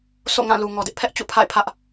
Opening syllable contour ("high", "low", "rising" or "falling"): falling